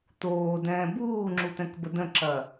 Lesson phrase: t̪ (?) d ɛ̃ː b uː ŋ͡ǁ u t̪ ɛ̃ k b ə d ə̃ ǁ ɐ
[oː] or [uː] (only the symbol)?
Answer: oː